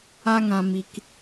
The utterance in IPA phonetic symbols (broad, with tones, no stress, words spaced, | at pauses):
a˦ŋã˧ mi˧k